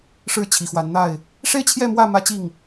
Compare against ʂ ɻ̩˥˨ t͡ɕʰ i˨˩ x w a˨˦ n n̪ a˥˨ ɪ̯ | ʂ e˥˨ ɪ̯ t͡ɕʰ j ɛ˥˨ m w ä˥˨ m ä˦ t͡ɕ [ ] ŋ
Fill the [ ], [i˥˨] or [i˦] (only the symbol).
i˥˨